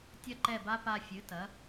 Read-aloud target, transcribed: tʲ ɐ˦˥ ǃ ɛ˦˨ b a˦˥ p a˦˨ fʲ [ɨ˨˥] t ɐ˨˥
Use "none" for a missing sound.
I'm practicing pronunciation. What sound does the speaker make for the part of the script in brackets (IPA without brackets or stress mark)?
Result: ɨ˨˥